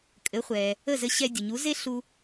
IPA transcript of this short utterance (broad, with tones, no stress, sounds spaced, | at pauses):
kʼ ɘ˩˥ χʷ ɛ˩ | ə˥˩ z ɘ˧ ɕ ɛ˧ dʲ ə˩ ɲ u˩˥ z e˥ ɬ u˧